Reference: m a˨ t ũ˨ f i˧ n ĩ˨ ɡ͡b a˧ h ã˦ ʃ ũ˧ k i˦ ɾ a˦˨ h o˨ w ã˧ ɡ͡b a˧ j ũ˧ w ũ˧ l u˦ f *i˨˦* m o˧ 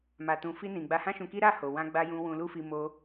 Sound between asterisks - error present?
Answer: yes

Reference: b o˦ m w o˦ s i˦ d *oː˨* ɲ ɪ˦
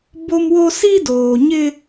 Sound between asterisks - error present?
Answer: no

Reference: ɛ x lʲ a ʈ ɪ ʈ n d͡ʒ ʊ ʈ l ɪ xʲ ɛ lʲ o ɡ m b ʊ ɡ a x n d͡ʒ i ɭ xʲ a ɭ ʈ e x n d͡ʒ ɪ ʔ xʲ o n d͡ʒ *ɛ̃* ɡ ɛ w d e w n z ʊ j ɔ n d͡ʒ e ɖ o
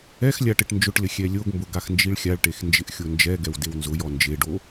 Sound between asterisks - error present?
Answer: yes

